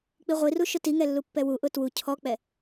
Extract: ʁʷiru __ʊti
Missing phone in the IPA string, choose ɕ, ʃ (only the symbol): ʃ